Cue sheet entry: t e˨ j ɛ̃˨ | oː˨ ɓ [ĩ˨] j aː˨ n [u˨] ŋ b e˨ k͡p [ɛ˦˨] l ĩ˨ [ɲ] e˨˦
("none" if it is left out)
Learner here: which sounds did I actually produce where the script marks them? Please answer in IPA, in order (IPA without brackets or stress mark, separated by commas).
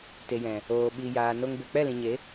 i˨, o˨, ɛ˦˨, ɲ